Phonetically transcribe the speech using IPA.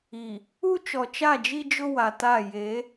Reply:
i˨ | u˦ t͡ʃɔ˨t͡ʃa˦˨d͡ʒi˦d͡ʒʊ˦ wa˨ta˦˨ je˨˦

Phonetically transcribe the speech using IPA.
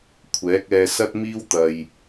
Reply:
kʷʰɛː˨˥k̚ɛː˧ sɐ˥t̚miː˥wt̪ɐ˧j

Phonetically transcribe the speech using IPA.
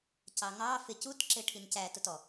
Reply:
cɑŋɑ fɪ cutǁɪʈʰin cæ tʊtɔ

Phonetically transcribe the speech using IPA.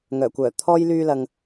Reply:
ŋœː˨˩kʷœː˨˩t̪ʰɔː˥j lyː˧ lɐ˨ŋ

